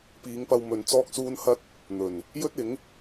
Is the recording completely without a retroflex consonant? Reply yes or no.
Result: yes